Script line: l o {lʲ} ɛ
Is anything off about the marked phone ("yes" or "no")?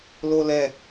yes